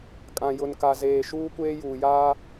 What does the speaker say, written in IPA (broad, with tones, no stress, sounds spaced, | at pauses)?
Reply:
kʼ ã˨ j ʊ˨ n k a˨ z eː˨ ʃ uː˦ kʷ eː˦ j uː˨ j aː˦